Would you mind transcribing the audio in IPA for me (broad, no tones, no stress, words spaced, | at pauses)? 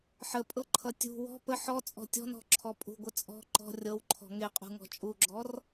ħəpʼɤǃʰʌ tʲṳ wɔ̤ pə ħɔt͡sʼɔ̤ tʲɔ̤nɔ̤ǁʰɔ pʼṳɡʷə t͡sʼɔ̤ ǃɔ̤ rʲɤwǃʰɔ̤ ŋeqʼṳŋɔ̤ t͡ʃʼuɡ͡ǁɔr